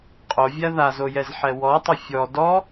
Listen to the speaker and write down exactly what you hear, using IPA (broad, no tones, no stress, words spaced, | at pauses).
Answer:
qʼovʲa ðazojɛzħɛ wɔtˤʊ fʲɔ dɔ